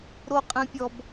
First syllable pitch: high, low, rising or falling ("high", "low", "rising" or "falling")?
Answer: high